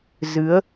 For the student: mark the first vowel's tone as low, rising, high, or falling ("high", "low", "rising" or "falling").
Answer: rising